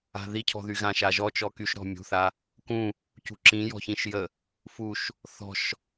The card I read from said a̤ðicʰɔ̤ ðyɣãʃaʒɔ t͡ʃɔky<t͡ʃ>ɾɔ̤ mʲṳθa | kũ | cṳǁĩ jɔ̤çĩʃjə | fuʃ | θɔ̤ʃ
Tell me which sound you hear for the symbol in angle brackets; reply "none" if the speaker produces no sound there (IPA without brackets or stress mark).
ʃ